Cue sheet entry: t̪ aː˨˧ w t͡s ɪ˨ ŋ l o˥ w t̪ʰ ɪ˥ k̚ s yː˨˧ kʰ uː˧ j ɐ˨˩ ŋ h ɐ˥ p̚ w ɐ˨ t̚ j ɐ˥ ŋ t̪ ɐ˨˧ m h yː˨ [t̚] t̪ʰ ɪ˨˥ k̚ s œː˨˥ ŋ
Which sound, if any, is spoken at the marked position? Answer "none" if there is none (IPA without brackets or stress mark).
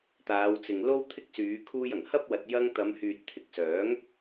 t̚